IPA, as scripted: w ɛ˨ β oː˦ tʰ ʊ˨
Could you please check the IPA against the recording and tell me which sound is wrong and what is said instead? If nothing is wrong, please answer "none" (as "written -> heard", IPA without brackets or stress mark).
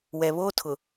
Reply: none